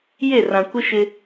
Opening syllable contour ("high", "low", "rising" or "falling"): falling